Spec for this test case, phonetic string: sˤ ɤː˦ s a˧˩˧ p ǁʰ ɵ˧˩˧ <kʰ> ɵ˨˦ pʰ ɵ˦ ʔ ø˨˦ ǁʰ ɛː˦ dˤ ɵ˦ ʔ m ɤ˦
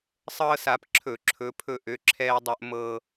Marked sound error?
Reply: yes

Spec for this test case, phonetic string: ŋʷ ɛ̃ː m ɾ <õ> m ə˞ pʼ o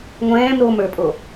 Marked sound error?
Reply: yes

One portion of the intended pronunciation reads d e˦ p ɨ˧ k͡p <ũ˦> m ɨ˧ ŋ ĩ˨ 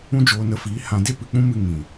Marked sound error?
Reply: no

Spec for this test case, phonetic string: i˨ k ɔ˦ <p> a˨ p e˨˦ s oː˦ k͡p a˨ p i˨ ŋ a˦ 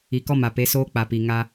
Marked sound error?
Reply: yes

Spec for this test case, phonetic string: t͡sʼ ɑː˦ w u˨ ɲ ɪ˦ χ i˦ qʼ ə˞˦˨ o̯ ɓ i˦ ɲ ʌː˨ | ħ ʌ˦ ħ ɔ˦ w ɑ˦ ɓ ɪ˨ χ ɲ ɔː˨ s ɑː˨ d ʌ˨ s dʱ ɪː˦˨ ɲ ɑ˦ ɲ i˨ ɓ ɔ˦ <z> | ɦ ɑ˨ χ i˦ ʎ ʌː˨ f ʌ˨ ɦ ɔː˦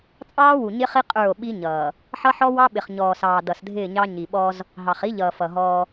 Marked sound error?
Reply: no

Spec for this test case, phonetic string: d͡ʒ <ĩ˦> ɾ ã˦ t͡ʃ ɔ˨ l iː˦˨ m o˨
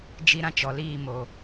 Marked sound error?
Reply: yes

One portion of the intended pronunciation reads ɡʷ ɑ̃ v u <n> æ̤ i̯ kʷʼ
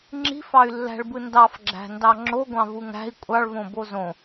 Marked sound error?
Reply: yes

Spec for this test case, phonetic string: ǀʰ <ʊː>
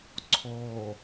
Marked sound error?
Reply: yes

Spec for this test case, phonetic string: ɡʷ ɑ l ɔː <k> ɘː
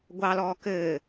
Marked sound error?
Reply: no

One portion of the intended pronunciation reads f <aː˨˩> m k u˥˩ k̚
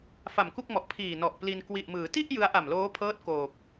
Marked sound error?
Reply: yes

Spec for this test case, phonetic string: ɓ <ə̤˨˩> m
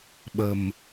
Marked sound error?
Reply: no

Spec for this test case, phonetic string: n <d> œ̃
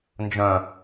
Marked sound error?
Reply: yes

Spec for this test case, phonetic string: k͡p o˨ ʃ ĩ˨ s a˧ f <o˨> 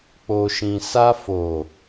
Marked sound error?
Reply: no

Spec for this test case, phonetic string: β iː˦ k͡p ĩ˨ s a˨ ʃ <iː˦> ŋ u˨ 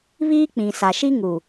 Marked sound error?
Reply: yes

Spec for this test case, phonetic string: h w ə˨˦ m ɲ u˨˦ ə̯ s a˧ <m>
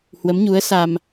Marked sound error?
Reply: no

